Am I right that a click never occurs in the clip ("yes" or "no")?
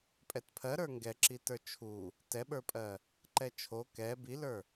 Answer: no